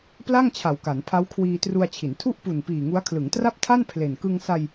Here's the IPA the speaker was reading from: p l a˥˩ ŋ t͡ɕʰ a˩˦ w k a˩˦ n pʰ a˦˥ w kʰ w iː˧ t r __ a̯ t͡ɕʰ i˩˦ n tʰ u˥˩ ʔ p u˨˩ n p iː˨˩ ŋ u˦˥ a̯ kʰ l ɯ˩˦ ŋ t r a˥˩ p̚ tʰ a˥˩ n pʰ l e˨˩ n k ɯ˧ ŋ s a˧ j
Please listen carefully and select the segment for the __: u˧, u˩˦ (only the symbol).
u˧